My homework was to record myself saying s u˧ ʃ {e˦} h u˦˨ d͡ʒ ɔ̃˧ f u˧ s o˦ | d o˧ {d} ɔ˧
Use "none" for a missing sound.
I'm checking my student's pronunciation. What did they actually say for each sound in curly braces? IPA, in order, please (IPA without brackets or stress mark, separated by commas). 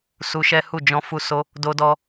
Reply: ɛ˦, d